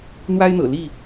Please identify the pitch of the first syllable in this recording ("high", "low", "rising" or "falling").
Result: high